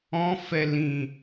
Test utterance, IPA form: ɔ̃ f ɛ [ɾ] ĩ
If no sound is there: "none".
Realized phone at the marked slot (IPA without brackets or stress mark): l